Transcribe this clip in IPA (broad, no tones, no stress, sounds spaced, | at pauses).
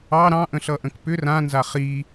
ɑ ɾ ɑ̃ ʔ ə̃ ɬ ʌ ʔ ə̃ k p ʏ r ã n z a χ i